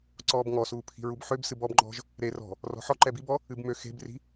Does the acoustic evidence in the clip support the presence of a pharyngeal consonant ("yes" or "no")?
yes